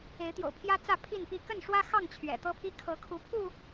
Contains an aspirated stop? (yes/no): yes